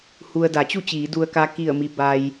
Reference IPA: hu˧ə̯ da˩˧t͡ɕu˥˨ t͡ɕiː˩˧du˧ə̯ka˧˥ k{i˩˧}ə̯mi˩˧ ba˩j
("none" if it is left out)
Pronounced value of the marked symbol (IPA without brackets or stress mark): i˧˩